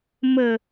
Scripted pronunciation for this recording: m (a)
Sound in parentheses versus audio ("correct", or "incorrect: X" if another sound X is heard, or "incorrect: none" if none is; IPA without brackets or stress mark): incorrect: ə